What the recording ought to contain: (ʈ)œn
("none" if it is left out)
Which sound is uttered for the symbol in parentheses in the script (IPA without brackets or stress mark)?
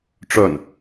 ʈ͡ʂ